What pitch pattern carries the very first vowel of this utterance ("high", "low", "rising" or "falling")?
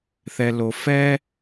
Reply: low